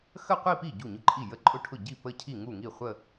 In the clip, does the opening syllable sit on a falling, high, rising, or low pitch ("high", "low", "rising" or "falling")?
falling